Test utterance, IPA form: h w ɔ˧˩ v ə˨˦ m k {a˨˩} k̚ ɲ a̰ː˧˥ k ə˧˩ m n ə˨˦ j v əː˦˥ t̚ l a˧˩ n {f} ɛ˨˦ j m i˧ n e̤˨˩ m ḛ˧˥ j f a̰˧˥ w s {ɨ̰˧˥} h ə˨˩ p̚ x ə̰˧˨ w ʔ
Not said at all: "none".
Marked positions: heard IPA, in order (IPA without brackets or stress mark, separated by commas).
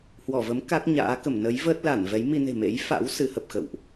a˦˥, v, ɨ˨˦